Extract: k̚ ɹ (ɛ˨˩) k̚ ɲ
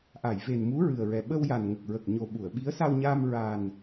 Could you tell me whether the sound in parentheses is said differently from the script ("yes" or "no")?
yes